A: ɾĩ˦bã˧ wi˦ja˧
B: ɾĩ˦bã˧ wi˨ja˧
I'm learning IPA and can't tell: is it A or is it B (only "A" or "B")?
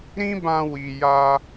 B